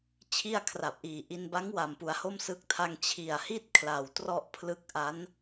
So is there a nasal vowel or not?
no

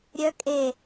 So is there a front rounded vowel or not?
yes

